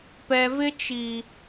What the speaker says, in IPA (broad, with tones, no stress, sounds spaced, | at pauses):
p ɛ˨ v ɪ˦ t͡ʃ i˨